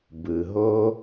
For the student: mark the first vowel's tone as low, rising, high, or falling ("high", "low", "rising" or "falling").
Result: low